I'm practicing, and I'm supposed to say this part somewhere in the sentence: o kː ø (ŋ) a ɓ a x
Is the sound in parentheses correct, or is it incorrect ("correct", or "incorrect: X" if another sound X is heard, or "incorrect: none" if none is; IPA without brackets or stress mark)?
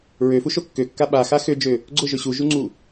incorrect: kː